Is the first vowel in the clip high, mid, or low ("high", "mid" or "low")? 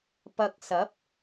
low